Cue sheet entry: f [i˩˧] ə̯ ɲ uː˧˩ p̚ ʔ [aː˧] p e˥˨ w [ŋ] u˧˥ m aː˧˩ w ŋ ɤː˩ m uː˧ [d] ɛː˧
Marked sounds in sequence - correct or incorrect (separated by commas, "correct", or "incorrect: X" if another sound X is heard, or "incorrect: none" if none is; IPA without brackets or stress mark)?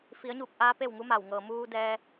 correct, correct, correct, correct